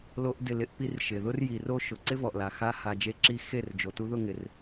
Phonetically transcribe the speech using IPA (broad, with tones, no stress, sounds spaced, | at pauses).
l o˦ ʔ d ɪ˦˨ l ɪ˦ ʔ p i˦ r ʃ ɪ˨ ð ʊ˦ r j i˨ r o˦ ʃ ʊ˨ ǀ ɪ˦ v ɔ˨ ʔ l a˨ x a˦ h a˧ d͡ʒ e˧ ǁ i˧ x e˦˨ r d͡ʒ o˨ t u˧ ð ʊ˦˨ ŋ ɪ˨ r